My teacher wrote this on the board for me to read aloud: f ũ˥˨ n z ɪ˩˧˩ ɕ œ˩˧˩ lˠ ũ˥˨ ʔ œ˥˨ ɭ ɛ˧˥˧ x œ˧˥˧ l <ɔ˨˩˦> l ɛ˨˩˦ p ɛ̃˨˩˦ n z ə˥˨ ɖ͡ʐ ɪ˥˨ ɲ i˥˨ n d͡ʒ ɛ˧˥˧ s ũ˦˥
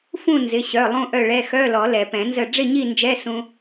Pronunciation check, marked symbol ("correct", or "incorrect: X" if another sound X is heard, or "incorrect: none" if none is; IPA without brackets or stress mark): correct